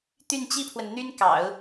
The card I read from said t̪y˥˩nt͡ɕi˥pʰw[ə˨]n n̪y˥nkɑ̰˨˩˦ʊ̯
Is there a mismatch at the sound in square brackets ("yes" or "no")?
no